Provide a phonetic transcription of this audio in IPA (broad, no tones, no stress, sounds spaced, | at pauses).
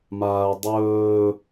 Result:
m aː ɐ̯ dˤ ɵː